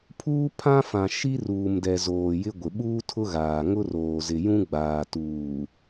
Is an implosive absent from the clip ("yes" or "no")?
no